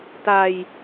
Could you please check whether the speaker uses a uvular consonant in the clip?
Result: no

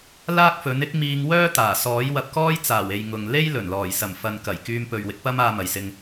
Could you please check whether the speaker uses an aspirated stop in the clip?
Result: no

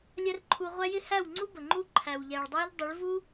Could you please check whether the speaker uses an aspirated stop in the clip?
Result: yes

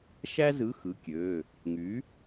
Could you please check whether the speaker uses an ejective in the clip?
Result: no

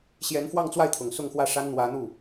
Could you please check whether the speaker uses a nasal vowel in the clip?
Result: no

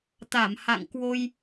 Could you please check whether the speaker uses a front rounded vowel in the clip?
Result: no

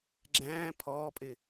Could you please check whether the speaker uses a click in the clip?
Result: yes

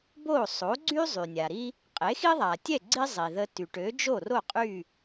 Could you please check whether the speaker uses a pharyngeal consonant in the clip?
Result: no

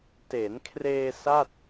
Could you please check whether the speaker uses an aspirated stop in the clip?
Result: yes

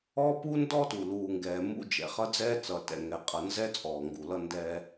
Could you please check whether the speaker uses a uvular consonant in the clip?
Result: yes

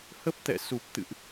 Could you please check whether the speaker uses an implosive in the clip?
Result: no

